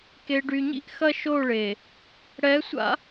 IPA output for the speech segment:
k e˨ ɖ y˨ ɲ ḭ˦ ʔ x ɐ˦ ʃ o˦˨ ɭ e˨ | ɽ ɛ˨˦ sʷ a̰˦

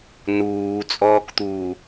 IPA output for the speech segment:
n uː t͡sʼ ɔː k t̪ uː

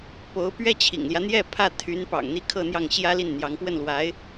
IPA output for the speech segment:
p o˧˥ ʊ̯ p ɥ ɛ˥ t͡ɕʰ ḭ˨˩ ŋ l j ä˦ n̪ j ɛ˥˧ pʰ ä˥˩ t̪ʰ y˧˥ n p ɑ̰˨˩ ŋ n̪ i˧˥ kʰ ɤ˥˧ n̪ j ɑ˥˩ ŋ ɕ j ä˥ l i˥˩ n n̪ j ɑ˧˥ ŋ p w ə˥˩ n l w a˧˥ ɪ̯

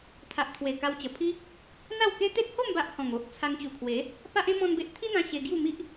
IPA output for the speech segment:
t̪ʰ a˨ ʔ t̪ʰ w e˨˩ k a˧ w t͡ɕ ə˨˩ pʰ i˦ | n̪ a˥˧ w k e˦ t̪ e˦ t̚ h o˥˧ m b a˦ ʔ h ɔ̃˨˩ ŋ o˦ ʔ t͡sʰ a˧ ŋ t͡ɕ u˨˩ kʰ w e˨˦ | p a˦ ʔ ẽ˦ m ɔ̃˦ n b e˦ ʔ t̪ʰ i˦ n̪ ã˧ ɕ e˧ ɡ j u˥˧ m i˦ ʔ

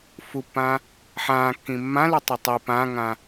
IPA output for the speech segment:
f u pː ãː | ħ ãː kː ĩ mː ã l ʉ tˤ e tˤ i p ã ŋ ã

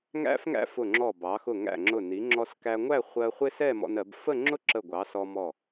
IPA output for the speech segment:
ŋ æ̰˥ f ŋ æ̰˥ f ʊ˧˩ ŋ͡ǁ ɔ˧˩ b ɑ˩˧ x ʊ˧˩ ŋ æ̰˧˩ ŋ͡ǁ ʊ˧˩ n i˩˧ ŋ͡ǁ ɔ˧ s k æ˧ ŋʷ æ˥˧ χʷ ɜ˧ χʷ ɪ˥ s ɛ˥˧ m ɔ̰˧ n ɜ˩˧ b f ə˥˧ ŋ͡ǁ ʊ˥ ǁ ə˧˩ ɡʷ ɑ˩˧ s ɔ˧ m ɔ˧˩

